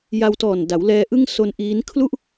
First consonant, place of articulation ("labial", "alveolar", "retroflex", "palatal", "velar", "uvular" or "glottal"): palatal